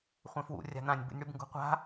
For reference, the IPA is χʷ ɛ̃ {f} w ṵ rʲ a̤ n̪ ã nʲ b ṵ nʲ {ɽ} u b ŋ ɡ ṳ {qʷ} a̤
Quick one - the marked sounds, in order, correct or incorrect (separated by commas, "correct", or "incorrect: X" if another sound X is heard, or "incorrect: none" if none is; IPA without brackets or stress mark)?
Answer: correct, correct, correct